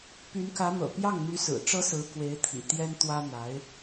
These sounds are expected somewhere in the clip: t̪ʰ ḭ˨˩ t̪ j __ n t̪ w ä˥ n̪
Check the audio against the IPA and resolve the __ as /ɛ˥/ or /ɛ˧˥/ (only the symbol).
ɛ˥